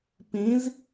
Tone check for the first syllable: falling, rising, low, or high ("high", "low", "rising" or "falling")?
rising